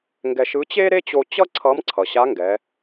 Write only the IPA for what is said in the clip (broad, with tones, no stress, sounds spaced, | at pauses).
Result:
ŋ ɡ ɛ˧ ʃ ɯ˧˥ t͡ɕ e˥ ɾ e˥ t͡ɕ o˧ t͡ɕ ʌ˥ ǀʰ ʌ˧˥ m ǀʰ ʌ˩ ɕ a˧˥ ŋ ɡ ɛ˩˧